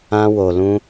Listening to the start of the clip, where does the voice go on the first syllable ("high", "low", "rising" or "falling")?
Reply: high